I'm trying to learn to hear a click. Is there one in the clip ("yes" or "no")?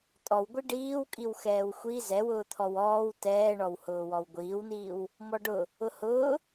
no